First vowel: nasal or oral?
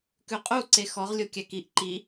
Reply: oral